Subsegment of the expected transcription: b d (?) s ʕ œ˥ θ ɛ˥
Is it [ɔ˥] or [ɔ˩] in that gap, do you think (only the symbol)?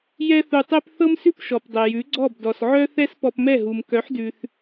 ɔ˩